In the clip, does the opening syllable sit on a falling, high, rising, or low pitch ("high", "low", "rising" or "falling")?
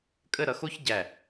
falling